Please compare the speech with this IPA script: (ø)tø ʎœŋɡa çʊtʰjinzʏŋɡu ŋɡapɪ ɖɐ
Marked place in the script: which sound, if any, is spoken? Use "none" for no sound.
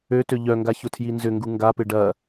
ø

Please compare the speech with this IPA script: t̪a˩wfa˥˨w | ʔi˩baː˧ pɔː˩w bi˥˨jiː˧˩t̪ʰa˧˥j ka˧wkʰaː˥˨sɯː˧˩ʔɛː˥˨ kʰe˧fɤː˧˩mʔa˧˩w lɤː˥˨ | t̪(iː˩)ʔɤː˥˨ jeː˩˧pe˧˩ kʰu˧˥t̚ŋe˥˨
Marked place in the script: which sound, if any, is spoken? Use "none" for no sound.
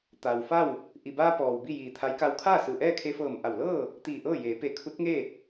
iː˧˩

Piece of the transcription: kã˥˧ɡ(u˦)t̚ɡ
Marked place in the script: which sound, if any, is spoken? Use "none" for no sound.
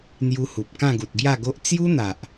u˨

